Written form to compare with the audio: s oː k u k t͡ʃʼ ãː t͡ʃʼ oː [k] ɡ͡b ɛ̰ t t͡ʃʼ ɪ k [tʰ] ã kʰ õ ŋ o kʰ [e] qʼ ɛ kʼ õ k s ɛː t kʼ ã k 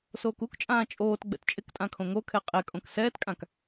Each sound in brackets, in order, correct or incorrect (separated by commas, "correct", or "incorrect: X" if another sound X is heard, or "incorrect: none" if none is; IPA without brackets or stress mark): incorrect: t, incorrect: tʼ, incorrect: ɛ